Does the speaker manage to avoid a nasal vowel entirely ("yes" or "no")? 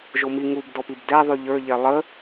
yes